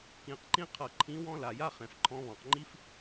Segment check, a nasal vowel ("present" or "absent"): present